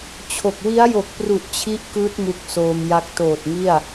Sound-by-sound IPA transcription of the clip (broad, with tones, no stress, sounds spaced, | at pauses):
t͡ɕʰ o˨˩ k̚ w i˦˥ a̯ j o˨˩ k̚ p r u˨˩ ʔ t͡ɕʰ i˦˥ ʔ k ɯː˦˥ t̚ m u˦˥ k̚ s oː˧ m j a˦˥ k̚ t oː˨˩ t̚ ŋ i˥˩ a̯